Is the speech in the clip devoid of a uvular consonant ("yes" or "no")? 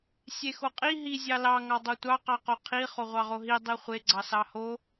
no